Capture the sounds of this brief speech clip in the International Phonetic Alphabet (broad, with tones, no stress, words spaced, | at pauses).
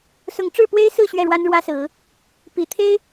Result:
sʊ˨˦ŋʈ͡ʂɻ̩˥˨ pwe˦ɪ̯sɹ̩˥˨ ɕɥɛ˥˨ɻwa˦nɻwä˦sɹ̩˨˦ | pi˨˩t̪ʰe˦ɪ̯